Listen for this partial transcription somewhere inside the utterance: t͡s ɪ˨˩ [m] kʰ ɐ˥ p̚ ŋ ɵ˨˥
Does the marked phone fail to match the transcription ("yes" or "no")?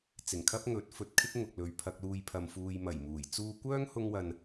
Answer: yes